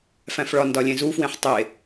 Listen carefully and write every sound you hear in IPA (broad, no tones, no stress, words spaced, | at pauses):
fæ̃fɭɒ ndɒlʲẽzufwẽħ tˤe